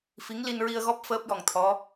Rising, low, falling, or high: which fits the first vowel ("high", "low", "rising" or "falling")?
rising